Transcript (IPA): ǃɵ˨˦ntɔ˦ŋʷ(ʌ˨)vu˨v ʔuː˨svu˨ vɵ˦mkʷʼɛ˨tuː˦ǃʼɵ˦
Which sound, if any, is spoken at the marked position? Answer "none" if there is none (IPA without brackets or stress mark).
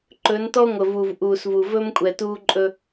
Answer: ə˨